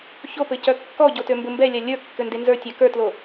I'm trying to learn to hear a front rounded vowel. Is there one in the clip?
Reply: yes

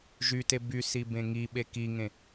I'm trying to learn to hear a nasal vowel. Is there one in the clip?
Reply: yes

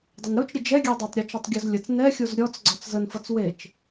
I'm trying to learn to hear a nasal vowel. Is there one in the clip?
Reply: no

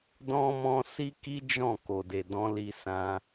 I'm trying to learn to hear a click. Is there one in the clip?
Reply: no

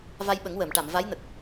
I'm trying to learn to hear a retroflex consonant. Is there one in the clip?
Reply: yes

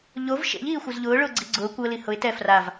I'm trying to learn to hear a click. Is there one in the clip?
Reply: yes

